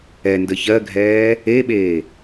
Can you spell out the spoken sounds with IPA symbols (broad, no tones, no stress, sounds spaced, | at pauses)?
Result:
ɛ n d ə ç ɜ ɡʱ ɛː | e ɓ eː